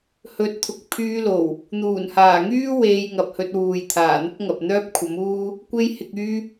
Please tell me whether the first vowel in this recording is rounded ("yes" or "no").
yes